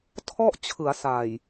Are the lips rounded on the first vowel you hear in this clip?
yes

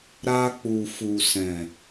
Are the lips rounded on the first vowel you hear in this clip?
no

